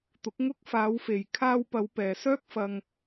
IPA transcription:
t̪ʊ˨˥k̚ŋʊ˥k̚ faː˨˧wfe˨j kʰaː˧wpɐ˨˧w pɛː˨sœː˥k̚ fɐ˥ŋ

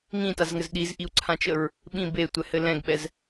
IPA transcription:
ŋĩtazŋɘz ɗizʔiu̯ǀʰãt͡ʃəɹ | ɓĩ betʷɛhɘ lɛ̃ɡɓɛz

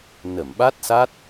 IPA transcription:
nə˧˩mɓa˦˥t̚sa˦˥t̚

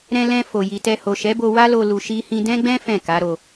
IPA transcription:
ɾɛ̃˧lɛ̃˧ fo˨ji˨tɛ˧ ho˨ʃɛ˨˦bo˧ wa˦lo˧ lu˨ʃi˧hĩ˧ dɛ̃˦ɡ͡bɛ̃˦ fɛ̃˦˨ka˨˦ɾo˧

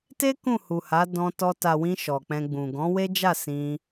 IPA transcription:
te˦ kũ˦˨hu˨ha˨˦ dɔ̃˧tɔ˧ ta˨wĩ˧ ʃɔ˨k͡pɛ̃˧ɡ͡bũ˨ ɡɔ̃˨˦we˦d͡ʒa˦˨ sĩ˧

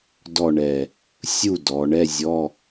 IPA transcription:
dɔ˥˨ɳɛ˧˩ | sʲu˥˨ dɔ˩˧ ɳɛ˧˥˧zʲɔ˧˥˧

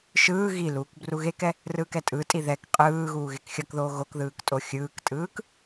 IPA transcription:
ʃɯː ɣiluːk bruɣekɛ | rɯːkɛtʼɯtʼi ðɛk qʼɯː ɣuːɣekxʲʌkðoː ɣokðɯːk tʼoxʲɯːktʼɯːk

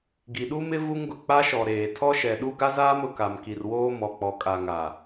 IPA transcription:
ɡi˨ɗu˦mɪ˦ vu˦ŋ ɡʊ˨ k͡pa˦ʃɔ˨ɾeː˨ tʰɔ˦ʃɛ˨ɗu˦ ɡa˦zaː˦m ʊ˨ka˨mki˨rwoː˦ mɔ˨k͡pɔ˨kʼa˨ ŋa˨

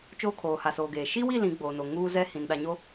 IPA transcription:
t͡ʃoː˦ kʰoː˨ha˨soː˨ɡeː˨ ʃi˦wi˦˨ lĩ˨˦ɡ͡boː˨no˨ ŋuː˦zɛ˦ hĩ˨n ɗa˨ɲo˦

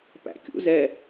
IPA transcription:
pæ̰kʲṵ zɛ

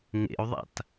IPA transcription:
ŋḛu̯ðˤa̰t

